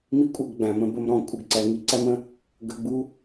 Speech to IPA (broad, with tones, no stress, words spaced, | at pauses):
mi˦kʷʼʌ˧ɡɡ͡bæ̃˨ mə̃˧bə˧mɾɔ̃˨ kʷʼɪ˧ɡǀæ˧ ŋi˧ǀæ˦mə̃˦ | ɡə˧ɡ͡bu˦